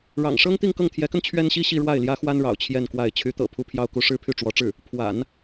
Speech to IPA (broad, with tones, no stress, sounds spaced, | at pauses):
ɻ ɑ̰˨˩ ŋ ʂ ɤ˥ ŋ t̪ i˥˧ ŋ k ɤ˥˩ ŋ t̪ʰ j ɛ˧˥ k ə˧ n t͡ɕʰ ɥ ɛ˥ n ɕ i˥ ɕ i˥˧ ɻ w a˥˩ ɪ̯ l j ä˥ x w a˥ n ɻ ɑ̰˨˩ ʊ̯ t͡ɕʰ j ɛ˥˧ n k w a˥˩ ɪ̯ t͡ɕʰ y˧˥ t̪ ɤ̰˨˩ pʰ u˥˧ pʰ j ɑ˥˧ ʊ̯ k u˥˧ ʂ ɻ̩˥˧ pʰ y˥˩ ʈ͡ʂ w ɔ˧˥ ʈ͡ʂ ɻ̩˥˩ | pʰ w a̰˨˩˦ n